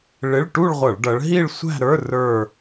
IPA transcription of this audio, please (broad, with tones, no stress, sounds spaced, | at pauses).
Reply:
ɭ ɪ˧˥˧ ɭ ʈ u˥˧ ɭ ʁʷ ʌ˧˩˧ ɭ ɖ ʌ˨˦ ɭ ɦ i˥˧ ɭ sʷ æ̤˥˧ ɾ ə˞˧˥˧ r ə˞˥˧